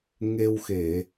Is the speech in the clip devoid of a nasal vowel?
yes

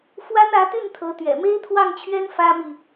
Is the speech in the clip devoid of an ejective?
yes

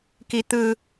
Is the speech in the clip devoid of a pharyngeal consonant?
yes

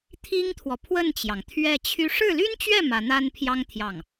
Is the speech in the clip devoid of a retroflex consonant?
no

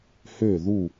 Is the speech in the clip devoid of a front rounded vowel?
no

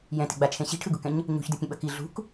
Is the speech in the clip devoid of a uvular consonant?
yes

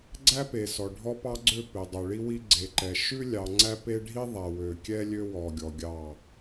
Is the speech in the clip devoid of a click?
no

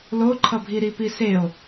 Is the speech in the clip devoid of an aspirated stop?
no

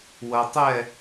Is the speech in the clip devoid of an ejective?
yes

